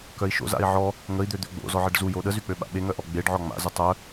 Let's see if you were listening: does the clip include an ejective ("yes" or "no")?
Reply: no